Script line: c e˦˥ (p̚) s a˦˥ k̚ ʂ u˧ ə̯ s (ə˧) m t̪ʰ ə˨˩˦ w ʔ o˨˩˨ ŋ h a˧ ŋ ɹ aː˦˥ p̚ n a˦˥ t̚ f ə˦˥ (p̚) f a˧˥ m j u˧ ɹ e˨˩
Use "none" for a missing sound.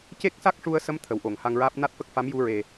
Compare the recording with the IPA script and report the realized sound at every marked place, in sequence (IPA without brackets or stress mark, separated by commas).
k̚, ə˧, k̚